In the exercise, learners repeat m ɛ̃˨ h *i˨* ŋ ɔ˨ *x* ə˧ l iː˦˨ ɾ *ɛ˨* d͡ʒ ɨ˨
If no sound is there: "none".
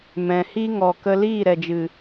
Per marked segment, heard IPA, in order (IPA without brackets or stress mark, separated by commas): i˦, k, ɛ˨